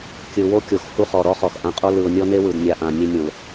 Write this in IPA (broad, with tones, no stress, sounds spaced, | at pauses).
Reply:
kʲ ɯ˨ w o˦ kʲ o˨ x h u˦ χ ɔ˨ ɾ ɔ˦ χ ɔ˨ x ʔ ã˨ qʼ o˦ l ɯ˨ ʊ̯ nʲ ɔ˦ n e˦ w ɯ˨ d nʲ a˨ ʔ ã˨ nʲ e˦ nʲ õ˨ l